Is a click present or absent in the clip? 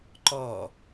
present